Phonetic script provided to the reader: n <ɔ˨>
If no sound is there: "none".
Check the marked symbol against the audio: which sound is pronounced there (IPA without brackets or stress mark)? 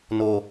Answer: o˨